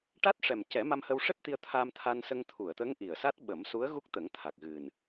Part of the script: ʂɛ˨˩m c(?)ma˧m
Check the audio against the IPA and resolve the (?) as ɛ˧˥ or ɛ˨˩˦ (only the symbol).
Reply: ɛ˨˩˦